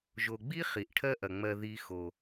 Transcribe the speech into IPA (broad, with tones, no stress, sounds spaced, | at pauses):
ʒ o˨ ɡ͡b i˥ χ i˩ ʔ ʈʰ ɜ˦ ʔ ɐ˩ ŋ͡m ɜ˨ ð i˨ x o˩